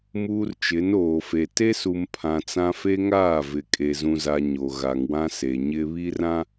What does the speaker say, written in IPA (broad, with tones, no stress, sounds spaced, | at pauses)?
m uː˦ r t͡ʃ ɪ˨˦ n oː˨ f e˨ t e˦ s u˨ m pʰ ã˨ t͡s ã˦ f e˦ ŋ aː˦˨ v ɪ˨ kʼ e˨ z ũ˦ z a˦ ɲ o˨ ɣ a˨ ŋ w ã˦ s e˨ ɲ ɪ˦ β i˦ r ã˦